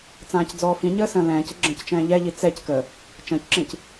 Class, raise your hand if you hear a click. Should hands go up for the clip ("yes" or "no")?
yes